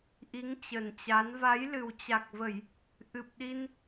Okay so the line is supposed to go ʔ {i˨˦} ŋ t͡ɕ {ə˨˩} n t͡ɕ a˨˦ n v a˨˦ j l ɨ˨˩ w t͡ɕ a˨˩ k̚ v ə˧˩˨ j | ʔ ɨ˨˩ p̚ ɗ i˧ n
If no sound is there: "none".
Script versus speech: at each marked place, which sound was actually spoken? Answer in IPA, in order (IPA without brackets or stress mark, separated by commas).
i˨˦, ə˨˩